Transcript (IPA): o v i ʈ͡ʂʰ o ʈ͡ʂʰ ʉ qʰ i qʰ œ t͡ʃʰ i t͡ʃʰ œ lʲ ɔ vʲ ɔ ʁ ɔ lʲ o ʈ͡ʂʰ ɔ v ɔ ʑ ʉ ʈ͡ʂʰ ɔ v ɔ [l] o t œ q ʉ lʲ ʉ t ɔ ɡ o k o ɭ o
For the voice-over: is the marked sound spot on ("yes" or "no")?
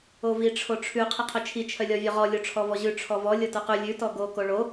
no